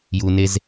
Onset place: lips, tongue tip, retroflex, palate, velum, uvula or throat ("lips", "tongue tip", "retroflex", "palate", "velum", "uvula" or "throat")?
palate